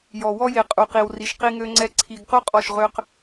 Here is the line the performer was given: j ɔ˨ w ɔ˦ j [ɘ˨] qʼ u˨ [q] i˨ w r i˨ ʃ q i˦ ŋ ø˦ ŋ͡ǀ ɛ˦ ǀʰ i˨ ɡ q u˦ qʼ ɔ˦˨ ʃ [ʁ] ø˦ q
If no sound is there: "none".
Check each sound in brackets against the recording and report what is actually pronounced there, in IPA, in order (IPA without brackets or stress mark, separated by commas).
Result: e˨, q, ʁ